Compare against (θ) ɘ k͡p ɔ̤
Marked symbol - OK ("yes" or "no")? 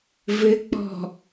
no